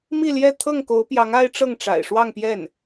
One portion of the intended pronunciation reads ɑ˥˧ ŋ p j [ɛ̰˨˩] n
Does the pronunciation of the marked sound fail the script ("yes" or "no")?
yes